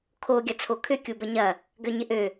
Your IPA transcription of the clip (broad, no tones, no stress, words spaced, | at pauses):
kʰo ɡʲɐt͡sʰokʰʏ kʲubəɲɐ | ɡøɲɪʔø